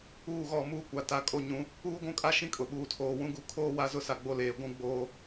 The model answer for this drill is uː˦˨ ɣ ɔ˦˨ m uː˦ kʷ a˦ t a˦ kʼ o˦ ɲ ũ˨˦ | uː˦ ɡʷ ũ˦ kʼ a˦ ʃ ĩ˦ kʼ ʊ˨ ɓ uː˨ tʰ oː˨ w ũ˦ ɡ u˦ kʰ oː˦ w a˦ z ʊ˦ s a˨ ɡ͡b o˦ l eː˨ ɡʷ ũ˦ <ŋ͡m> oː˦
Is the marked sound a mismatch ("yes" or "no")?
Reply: yes